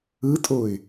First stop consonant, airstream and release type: ejective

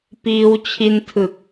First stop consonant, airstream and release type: plain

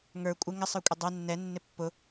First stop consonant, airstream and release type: ejective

